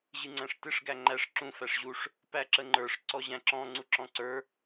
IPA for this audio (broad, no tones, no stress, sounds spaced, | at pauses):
ʑ ɨ ŋ͡ǀ æ̃ ʂ t ɨ ʂ ɡ æ ŋ͡ǃ æ ʂ ǁ ũ f æ ʂ ʑ u ʂ | p æ ǁ ə ŋ͡ǃ ə˞ ʂ ǀ ɔ ʑ æ̃ ǁ ɔ̃ ŋ͡ǀ u ǁ ɔ̃ ǀ ə˞